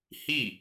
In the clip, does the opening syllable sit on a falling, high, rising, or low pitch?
falling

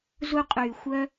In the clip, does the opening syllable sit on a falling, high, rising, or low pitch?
high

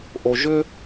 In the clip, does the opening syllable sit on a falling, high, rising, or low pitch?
low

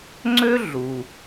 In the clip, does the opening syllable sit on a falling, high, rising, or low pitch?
high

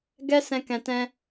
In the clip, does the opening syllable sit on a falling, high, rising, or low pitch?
high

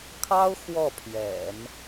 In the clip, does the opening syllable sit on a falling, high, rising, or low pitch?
high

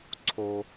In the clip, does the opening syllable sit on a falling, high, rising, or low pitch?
low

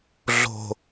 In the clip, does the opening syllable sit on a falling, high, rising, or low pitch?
low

